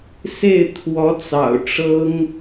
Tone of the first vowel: falling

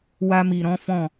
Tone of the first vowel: high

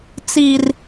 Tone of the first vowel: low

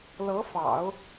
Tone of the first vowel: rising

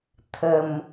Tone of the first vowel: low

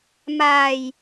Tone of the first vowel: low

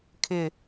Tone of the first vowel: falling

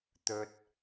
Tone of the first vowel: low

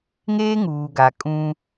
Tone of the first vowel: high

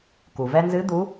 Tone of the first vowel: low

